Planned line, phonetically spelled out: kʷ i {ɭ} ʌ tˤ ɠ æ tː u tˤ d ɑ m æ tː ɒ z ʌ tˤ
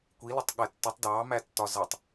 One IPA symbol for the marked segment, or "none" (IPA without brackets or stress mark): l